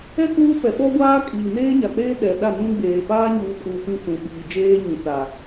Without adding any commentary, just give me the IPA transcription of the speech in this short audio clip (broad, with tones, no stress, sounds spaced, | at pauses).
ɛ˦ k uː˦ p ɛ˨ ɓ ɔ˦ ɡʷ aː˦ kʼ iː˨ n eː˦ ɲ a˨ k͡p eː˦ ɗ ɛ˨ ɗ a˦˨ n ũ˦ ɡ͡b eː˨ p aː˦ ɲ uː˨ kʼ uː˨ p ĩ˦ t͡s ũ˨ ɓ iː˨ d͡ʒ eː˦ ɲ ĩ˨ t͡s a˨